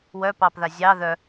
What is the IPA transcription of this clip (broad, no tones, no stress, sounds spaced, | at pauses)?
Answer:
w œ p ɑ p ð a zʲ ɑ ð œ